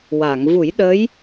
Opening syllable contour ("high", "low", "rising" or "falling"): low